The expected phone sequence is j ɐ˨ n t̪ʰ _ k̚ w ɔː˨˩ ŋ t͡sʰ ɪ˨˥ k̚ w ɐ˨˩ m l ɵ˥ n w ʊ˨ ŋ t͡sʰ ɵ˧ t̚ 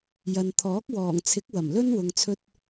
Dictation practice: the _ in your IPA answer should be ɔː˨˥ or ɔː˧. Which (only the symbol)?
ɔː˨˥